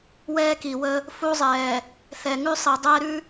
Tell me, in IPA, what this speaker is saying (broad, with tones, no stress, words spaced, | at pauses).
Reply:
wɛː˦ki˨wə˦ | fu˦ zˤɛː˨ | θɛ˨ŋʉ˦ sˤi˨dˤɛː˦ɾʉ˦